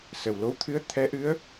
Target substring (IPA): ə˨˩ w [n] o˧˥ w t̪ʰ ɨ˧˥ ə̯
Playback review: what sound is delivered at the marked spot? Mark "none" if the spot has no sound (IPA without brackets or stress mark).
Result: l